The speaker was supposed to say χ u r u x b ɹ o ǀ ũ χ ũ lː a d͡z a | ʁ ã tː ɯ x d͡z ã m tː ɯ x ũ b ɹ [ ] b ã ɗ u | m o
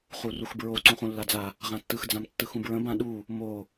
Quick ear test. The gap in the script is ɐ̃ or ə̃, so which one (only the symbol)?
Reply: ə̃